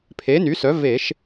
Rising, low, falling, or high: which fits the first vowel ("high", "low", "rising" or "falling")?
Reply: rising